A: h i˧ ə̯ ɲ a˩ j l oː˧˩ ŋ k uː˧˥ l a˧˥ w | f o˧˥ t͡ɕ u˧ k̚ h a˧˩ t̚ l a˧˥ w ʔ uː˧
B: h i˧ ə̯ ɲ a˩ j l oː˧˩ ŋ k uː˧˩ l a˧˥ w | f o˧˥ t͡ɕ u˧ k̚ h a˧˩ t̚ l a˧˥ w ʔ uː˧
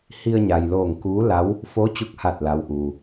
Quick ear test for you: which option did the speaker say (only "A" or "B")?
A